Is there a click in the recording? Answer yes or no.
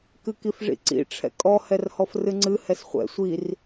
yes